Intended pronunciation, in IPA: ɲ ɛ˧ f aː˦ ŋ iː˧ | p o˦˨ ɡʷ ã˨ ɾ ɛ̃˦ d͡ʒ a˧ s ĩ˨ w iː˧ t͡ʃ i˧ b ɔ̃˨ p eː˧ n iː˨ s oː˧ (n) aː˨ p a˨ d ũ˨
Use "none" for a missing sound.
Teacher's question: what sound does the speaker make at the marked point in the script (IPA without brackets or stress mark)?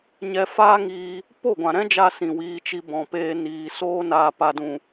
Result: n